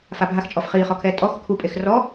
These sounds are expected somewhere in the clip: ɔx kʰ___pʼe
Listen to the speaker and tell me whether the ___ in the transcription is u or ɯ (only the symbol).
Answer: u